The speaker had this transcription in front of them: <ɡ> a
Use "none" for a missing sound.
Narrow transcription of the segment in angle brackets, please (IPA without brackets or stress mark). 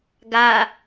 ɡ